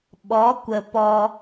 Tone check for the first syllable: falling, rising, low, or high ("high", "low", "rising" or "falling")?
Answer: rising